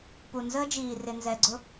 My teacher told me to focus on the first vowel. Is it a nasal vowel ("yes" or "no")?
no